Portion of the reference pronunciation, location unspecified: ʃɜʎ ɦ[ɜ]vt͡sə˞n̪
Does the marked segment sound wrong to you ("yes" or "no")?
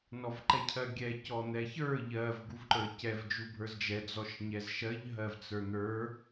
no